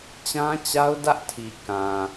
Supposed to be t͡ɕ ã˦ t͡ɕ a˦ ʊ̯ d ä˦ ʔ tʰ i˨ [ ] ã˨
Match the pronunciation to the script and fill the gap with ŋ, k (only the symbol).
k